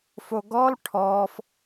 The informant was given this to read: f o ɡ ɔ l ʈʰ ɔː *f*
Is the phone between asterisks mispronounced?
no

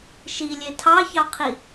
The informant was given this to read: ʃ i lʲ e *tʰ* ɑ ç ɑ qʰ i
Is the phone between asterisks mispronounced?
no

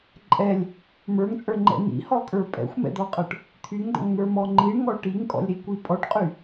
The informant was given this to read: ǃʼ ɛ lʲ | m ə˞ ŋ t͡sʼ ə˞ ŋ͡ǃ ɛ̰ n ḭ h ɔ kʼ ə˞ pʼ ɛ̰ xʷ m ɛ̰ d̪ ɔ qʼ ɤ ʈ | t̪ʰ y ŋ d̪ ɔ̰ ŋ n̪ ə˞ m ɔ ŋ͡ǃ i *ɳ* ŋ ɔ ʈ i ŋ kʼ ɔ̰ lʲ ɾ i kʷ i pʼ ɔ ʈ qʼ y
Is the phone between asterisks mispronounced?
no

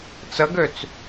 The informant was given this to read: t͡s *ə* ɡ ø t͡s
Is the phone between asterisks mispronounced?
no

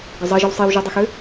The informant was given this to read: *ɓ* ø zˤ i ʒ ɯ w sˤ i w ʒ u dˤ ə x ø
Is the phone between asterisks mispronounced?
yes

